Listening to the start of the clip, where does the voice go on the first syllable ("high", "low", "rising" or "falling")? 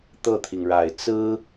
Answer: falling